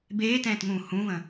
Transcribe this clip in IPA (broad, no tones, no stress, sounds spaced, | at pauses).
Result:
b eː t ɛ̃ː t ŋ ũː h ũ v ə̃